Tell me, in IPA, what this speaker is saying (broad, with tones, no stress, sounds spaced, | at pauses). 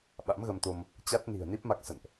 ɓ a̰˧˥ m ɣ ə˧ m t̪ o˧ m | t͡ɕ a˦˥ t̚ n i̤˨˩ ə̯ n i˦˥ p̚ m a˦˥ k̚ s ə̰˧˨ n ʔ